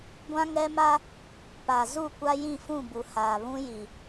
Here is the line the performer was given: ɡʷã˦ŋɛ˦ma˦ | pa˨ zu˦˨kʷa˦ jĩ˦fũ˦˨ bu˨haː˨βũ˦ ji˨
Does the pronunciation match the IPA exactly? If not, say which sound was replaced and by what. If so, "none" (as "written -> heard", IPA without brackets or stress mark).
ĩ˦ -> ĩ˦˨